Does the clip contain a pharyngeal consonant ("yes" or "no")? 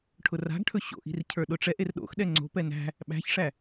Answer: no